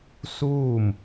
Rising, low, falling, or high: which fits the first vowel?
falling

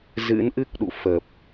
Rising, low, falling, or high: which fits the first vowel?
rising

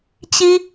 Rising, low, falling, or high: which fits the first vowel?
high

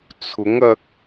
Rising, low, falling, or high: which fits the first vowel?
rising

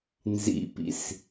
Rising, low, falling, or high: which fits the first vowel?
falling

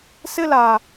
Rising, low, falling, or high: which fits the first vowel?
high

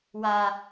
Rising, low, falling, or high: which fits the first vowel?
low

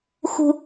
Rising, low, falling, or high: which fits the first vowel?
low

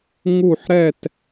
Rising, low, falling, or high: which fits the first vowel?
falling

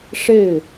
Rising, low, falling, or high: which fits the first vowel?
falling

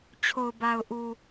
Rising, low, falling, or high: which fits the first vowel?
low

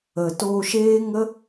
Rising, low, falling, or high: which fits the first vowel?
low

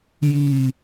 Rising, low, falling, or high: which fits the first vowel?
low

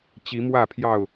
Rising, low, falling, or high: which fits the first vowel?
rising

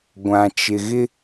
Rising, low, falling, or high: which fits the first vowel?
low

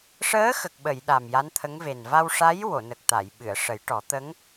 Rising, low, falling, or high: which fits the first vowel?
rising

